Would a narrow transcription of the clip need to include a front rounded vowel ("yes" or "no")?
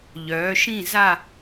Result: yes